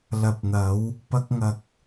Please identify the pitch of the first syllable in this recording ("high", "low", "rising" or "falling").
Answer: low